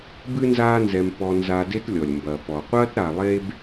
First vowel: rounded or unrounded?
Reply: unrounded